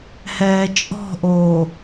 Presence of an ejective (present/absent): present